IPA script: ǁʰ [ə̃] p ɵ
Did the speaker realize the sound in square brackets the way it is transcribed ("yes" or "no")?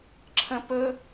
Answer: yes